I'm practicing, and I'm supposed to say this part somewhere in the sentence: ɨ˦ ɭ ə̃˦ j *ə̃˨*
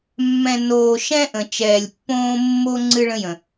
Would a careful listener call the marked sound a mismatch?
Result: no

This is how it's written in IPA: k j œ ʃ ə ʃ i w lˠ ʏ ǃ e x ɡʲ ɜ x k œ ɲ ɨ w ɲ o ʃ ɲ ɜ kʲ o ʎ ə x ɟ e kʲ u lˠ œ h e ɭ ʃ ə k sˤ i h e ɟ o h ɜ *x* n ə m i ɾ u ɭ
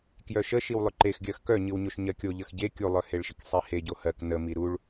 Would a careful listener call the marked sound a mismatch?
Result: yes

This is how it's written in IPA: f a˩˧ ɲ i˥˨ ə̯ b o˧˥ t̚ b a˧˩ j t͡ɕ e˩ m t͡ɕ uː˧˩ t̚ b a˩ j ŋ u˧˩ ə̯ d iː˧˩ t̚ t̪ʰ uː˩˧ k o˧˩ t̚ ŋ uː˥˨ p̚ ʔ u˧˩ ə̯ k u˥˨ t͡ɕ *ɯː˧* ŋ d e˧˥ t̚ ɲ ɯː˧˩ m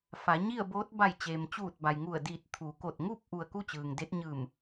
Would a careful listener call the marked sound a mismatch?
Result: yes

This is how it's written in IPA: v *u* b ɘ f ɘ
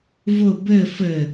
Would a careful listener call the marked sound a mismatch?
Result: yes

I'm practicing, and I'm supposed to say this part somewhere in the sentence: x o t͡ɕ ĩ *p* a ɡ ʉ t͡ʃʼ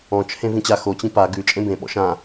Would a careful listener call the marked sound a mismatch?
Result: no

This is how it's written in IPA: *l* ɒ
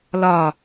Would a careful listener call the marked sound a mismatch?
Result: no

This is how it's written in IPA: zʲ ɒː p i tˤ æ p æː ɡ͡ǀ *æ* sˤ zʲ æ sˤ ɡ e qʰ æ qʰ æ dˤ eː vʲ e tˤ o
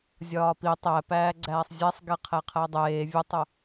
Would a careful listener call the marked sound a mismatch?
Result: yes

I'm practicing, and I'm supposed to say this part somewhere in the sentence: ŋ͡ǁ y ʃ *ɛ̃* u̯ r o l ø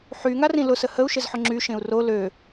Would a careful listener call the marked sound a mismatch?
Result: yes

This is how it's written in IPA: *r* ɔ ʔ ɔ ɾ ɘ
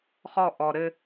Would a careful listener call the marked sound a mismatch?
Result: yes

